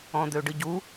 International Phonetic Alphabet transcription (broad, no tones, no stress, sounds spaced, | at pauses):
ɔ̃ d̪ ø ɖ ɨ ɟ u